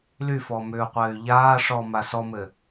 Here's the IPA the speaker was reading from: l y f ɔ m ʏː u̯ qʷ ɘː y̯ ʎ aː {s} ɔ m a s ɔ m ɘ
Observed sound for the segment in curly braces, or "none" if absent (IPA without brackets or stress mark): ʂ